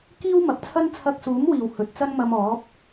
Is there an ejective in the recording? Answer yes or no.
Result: no